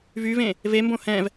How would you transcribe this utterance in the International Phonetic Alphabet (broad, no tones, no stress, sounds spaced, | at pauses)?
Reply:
v y v ẽ | v e m b õ h ɛ̃ v